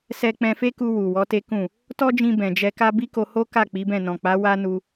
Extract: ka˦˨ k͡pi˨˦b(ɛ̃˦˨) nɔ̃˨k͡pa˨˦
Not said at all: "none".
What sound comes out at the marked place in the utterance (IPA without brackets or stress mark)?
ɛ̃˦˨